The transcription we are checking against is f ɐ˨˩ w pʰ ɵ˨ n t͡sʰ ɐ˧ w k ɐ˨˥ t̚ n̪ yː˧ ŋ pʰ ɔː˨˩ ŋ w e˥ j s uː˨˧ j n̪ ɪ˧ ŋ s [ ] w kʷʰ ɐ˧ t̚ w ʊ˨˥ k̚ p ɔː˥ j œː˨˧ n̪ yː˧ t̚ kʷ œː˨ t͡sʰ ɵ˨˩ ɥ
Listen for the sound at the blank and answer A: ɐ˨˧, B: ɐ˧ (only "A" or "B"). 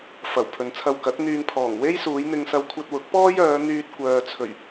B